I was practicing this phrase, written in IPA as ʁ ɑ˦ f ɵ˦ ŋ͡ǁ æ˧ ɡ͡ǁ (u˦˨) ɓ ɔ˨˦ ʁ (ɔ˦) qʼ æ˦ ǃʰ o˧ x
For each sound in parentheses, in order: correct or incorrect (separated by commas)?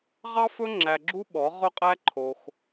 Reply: incorrect, incorrect